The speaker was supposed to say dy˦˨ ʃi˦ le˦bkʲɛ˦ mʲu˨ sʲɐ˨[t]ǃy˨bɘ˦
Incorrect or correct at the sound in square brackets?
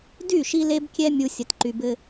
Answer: correct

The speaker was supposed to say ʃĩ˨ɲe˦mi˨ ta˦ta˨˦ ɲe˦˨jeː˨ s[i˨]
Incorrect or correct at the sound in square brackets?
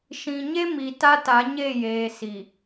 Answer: correct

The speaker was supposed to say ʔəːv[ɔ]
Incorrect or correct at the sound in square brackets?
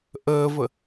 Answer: incorrect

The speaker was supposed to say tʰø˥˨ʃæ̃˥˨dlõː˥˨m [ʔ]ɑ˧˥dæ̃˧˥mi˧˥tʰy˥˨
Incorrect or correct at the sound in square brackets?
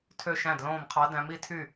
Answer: incorrect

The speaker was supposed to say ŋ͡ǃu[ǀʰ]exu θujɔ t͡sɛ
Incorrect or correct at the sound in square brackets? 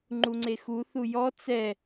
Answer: incorrect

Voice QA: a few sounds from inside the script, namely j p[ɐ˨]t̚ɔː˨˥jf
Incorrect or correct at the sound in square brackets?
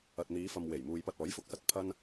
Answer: incorrect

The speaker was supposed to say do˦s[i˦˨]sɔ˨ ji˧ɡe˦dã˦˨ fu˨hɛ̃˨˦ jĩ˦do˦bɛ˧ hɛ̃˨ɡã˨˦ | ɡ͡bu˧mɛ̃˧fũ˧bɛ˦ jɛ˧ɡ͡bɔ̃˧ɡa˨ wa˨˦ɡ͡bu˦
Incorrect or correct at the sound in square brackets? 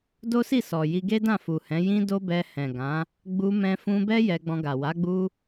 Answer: correct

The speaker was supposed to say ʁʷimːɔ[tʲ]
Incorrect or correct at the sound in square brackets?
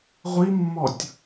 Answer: correct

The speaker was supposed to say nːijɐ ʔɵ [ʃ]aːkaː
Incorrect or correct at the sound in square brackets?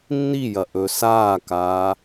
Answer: incorrect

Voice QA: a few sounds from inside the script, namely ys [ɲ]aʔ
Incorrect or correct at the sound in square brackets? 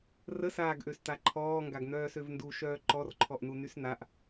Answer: incorrect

